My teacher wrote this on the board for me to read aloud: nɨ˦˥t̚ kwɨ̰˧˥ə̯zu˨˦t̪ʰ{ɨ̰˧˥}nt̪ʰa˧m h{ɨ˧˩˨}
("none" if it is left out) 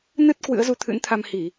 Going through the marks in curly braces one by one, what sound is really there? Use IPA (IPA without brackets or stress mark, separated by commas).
ɨ̰˧˥, i˧˩˨